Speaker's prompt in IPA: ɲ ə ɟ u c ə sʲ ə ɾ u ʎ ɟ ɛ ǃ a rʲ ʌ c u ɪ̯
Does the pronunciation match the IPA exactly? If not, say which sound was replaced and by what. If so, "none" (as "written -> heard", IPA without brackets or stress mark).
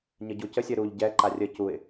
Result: ʌ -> ə